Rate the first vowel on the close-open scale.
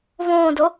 mid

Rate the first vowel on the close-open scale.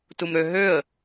close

